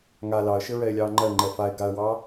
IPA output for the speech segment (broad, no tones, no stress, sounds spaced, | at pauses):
ŋ a l ɑ ə̯ ʃ ɘ ɹ ɛ ɪ̯ lʲ ɑː ŋ͡ǃ ɜ ŋ͡ǃ ɛ f a ɪ̯ ɡ a ə̯ w ɑ